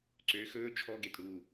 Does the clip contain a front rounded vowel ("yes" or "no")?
yes